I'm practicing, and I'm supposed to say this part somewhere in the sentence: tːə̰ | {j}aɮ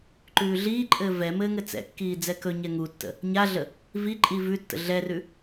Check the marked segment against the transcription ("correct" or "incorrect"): incorrect